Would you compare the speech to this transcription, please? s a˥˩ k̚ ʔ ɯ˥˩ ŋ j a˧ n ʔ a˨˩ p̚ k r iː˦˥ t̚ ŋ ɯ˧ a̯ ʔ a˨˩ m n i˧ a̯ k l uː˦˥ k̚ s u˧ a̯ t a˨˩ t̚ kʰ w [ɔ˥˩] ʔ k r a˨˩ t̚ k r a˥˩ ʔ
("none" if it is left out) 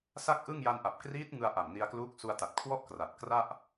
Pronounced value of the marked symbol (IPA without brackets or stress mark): ɔ˥˩